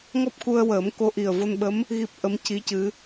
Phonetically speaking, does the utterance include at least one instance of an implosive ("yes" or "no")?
yes